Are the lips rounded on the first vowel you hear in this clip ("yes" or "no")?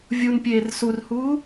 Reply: yes